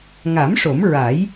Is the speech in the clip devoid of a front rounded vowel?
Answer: yes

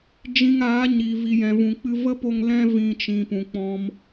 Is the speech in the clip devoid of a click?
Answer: yes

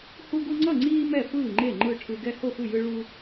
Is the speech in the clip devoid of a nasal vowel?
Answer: yes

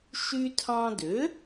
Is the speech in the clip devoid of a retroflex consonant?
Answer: yes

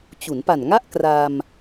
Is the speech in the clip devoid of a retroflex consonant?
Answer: yes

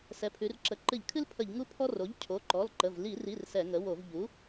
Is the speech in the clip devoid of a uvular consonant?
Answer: yes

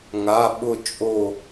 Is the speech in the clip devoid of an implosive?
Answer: no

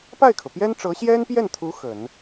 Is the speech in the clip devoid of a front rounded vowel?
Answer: yes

